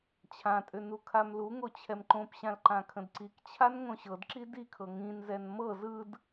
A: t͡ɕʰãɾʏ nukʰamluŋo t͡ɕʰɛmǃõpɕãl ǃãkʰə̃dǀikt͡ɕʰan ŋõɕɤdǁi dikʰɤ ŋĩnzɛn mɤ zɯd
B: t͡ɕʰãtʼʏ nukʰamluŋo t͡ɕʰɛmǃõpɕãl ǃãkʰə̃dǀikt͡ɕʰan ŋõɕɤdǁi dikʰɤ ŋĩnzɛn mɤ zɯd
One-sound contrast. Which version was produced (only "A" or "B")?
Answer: B